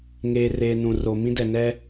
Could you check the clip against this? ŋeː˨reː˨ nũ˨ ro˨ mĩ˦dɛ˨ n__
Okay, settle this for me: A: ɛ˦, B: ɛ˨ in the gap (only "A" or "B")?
A